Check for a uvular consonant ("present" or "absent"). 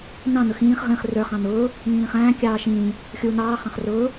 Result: present